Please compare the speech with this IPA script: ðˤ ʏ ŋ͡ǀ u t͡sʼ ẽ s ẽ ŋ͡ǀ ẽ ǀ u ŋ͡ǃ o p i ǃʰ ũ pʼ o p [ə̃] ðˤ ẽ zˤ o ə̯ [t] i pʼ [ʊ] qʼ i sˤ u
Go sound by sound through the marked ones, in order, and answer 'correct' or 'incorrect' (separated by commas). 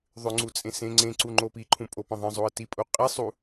correct, correct, incorrect